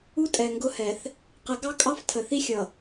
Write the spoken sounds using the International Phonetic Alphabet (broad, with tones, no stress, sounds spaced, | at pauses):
u˦ tʼ ɛ˨ ŋ ɡ ʊ˦ h ɛ˨ θ | q ə˨˦ ɡ ɑ˦ kʼ ɑ˦ f tʰ ə˨ θ i˦ xʲ ʌ˨